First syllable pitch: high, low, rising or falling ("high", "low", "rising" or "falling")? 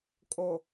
low